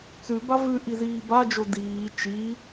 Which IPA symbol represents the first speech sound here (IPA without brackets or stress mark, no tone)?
t͡s